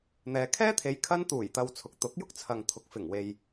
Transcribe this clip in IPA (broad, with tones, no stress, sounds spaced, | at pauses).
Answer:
n̪ ɛː˨ kʰ ɛː˥ t̪ʰ e˨˧ j kʰ ɐ˧ n t̪ uː˨˩ j t̪ ɐ˨ w t͡sʰ ʊ˨˥ k̚ t̪ ʊ˨˥ k̚ j ʊ˥ k̚ t͡sʰ ɐ˨ ŋ t̪ʰ ʊ˨ k̚ f ɪ˨˩ ŋ w e˨ j